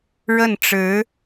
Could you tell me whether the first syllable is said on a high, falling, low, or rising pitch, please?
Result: falling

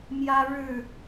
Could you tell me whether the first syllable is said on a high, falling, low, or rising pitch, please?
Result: high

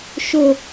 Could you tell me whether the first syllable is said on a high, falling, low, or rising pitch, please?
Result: falling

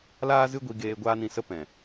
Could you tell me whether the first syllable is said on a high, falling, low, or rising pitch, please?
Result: high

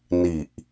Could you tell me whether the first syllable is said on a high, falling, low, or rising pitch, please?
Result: low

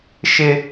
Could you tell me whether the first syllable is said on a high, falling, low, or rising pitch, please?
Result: high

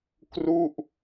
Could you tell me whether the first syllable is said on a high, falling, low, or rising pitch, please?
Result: falling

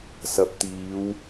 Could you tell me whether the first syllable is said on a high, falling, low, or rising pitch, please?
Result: rising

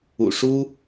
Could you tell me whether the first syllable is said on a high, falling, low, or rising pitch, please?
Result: low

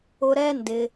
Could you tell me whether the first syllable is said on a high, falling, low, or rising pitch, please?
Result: high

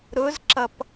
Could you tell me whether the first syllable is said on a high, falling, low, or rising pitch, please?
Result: rising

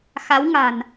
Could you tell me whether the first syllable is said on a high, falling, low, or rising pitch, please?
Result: rising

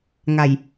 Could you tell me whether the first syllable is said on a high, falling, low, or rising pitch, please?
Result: low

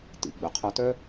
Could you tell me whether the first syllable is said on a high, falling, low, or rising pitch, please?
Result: low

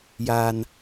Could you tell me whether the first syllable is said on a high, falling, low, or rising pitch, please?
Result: low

